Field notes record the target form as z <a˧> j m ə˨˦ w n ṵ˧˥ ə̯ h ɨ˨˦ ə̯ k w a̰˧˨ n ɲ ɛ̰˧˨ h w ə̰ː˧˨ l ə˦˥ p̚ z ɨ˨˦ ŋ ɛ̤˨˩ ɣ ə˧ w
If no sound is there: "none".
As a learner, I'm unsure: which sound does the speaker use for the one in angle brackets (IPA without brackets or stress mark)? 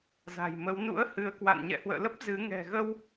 a̤˨˩